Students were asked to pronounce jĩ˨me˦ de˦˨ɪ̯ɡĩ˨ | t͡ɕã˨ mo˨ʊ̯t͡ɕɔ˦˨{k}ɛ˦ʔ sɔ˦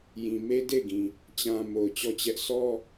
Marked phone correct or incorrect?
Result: incorrect: t͡ɕ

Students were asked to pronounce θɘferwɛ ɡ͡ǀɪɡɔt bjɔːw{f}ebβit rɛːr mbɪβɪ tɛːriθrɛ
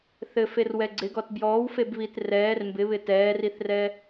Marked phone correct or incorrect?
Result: correct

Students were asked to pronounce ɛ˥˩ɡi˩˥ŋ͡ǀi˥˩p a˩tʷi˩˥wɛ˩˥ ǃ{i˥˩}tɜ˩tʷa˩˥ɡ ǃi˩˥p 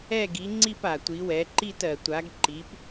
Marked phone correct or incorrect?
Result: correct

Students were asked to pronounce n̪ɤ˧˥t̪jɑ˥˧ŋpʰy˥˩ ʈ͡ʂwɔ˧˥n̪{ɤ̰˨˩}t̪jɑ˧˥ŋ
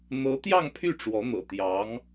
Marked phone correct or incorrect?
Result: correct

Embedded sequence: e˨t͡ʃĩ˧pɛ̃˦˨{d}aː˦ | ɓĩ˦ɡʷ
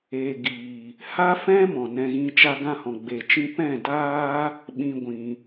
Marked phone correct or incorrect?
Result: correct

